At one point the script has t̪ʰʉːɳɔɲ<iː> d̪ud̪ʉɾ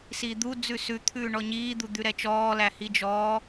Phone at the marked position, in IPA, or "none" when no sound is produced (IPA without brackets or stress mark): iː